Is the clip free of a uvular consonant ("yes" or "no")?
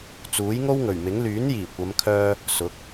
yes